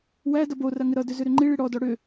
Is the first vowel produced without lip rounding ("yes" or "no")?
yes